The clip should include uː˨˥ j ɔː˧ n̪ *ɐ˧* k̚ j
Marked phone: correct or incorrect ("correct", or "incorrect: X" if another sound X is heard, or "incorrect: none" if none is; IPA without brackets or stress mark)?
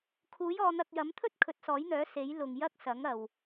correct